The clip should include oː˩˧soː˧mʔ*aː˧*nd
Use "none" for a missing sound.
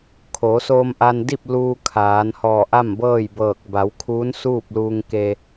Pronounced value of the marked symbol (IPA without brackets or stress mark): a˧